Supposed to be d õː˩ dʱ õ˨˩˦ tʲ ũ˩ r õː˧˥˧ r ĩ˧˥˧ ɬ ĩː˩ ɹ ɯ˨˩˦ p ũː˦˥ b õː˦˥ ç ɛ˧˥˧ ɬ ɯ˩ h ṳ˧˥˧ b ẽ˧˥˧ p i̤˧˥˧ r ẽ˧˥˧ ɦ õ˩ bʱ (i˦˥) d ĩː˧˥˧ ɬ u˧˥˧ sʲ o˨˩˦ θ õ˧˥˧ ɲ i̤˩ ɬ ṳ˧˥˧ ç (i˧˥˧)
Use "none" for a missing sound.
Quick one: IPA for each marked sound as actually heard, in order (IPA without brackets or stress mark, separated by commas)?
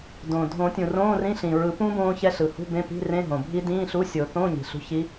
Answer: i˦˥, i˦˥